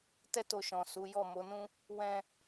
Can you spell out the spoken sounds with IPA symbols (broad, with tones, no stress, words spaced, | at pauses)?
tɛ˦to˧ ʃɔ̃˨ su˨˦jɔ˦˨ mo˨˦nũ˦ | wɛ̃˧